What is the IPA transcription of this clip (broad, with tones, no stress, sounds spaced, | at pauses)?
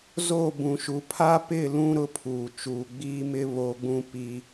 z o˦˨ b ũ˨ ʃ u˨ pʰ a˦ p ɪ˦˨ l ũ˦ ɾ ʊ˦ pʰ uː˨ t͡ʃ uː˨ ɡ͡b iː˦ m ɪ˦ β oː˦ ɡ͡b ũ˦ p i˦